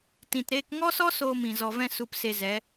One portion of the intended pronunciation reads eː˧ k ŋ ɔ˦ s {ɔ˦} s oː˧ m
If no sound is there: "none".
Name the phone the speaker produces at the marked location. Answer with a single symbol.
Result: ɔ˦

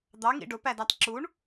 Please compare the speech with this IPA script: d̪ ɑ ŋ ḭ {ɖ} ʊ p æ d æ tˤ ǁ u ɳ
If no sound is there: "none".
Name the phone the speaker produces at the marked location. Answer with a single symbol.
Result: ɖ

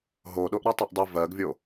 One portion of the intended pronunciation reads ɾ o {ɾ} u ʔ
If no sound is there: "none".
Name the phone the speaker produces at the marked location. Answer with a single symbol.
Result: tˤ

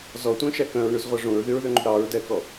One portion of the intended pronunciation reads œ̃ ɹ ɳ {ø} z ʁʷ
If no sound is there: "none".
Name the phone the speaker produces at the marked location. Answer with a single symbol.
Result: ʉ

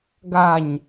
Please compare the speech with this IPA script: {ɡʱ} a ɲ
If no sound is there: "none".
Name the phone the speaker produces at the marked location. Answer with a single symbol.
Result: ɡ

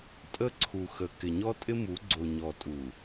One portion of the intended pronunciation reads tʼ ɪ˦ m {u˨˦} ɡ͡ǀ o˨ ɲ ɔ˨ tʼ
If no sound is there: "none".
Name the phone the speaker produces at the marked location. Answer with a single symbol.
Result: u˨˦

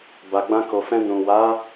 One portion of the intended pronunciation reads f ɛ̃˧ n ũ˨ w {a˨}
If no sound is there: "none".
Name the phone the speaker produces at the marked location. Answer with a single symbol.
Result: a˨˦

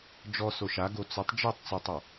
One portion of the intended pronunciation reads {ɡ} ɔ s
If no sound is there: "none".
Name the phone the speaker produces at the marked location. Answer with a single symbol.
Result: d͡ʒ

